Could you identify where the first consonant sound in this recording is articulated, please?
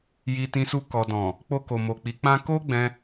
palatal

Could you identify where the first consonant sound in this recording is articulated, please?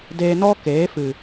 alveolar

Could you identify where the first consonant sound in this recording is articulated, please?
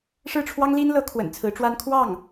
retroflex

